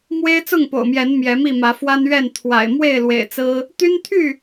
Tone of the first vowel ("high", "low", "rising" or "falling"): high